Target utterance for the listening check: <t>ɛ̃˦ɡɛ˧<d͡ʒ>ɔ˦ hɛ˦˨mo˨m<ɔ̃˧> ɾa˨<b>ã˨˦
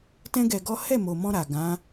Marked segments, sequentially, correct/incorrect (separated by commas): correct, incorrect, correct, incorrect